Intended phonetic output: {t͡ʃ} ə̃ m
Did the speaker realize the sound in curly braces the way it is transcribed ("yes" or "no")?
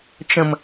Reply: yes